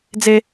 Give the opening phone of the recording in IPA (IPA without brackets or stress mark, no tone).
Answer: d͡z